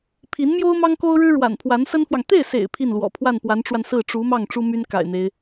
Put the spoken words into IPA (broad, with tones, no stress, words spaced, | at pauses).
pʰi˧˥nmjo˥ʊ̯ mɑ˥ŋko˥ʊ̯ɻɻ̩˥ ɻwa̰˨˩npʰwa˧˥nsə˥nfwɑ˨ŋ t̪e˥˩ɪ̯sḛ˨˩ɪ̯ pʰi˥˩nlwɔ̰˨˩ pʰwa˥˩npwa˧˥nʈ͡ʂwa˧n sɹ̩˥˩ ʈ͡ʂu˧˥mɑ˥˩ŋ ʈ͡ʂu˥my˥n ka̰˨˩ɪ̯n̪e˦ɪ̯